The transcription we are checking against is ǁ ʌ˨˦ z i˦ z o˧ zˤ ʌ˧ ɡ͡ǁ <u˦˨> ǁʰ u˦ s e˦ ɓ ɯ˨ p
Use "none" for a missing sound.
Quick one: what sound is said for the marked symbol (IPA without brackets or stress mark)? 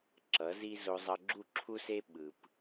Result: u˦˨